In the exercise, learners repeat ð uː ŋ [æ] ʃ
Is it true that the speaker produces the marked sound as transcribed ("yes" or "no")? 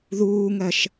no